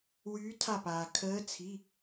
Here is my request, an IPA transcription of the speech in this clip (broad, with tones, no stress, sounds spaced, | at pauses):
w yː˨˦ tʰ a˧˩ p aː˩ kʰ əː˨˦ t͡sʰ i˩˧˩